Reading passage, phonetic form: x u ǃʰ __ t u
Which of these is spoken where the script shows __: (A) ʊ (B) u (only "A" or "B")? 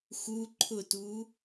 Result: A